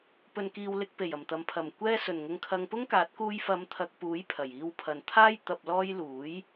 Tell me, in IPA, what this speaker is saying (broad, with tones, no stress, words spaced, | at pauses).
pɵ˨nkiː˨w lɪ˧k̚pe˨˩jɐ˨˩mt̪ɐ˨m pʰɐ˨˩m kʷɛː˧sɵ˨˩nŋʊ˨ŋ kʰɐ˧ŋpʊ˥ŋkaː˨˥t̚ kuː˧jfɐ˨˧m t̪ʰɐ˧k̚puː˨˥j pʰɐ˨˩jiː˧wpʰɐ˨nt̪ʰaː˥j t̪ɐ˨p̚lɔː˧j luː˨˥j